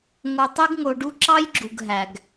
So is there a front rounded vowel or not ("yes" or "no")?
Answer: yes